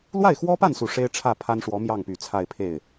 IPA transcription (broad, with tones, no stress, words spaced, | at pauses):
lwa˥˩ɪ̯xwɔ˥pa˥˩nsu˨˩ ʂe˥ɪ̯ʈ͡ʂʰä˥˩ pʰa˥nʂwɔ˧˥mjɑ˥˩ŋpy˨˩ t͡sʰa˥˧ɪ̯pʰe˥˩ɪ̯